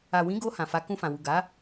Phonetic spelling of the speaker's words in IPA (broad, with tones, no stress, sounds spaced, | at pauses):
a˨ w ĩ˨˦ ɡ o˧ h ã˨ f a˨˦ k ũ˧ f ã˨ w u˨ ɡ a˨˦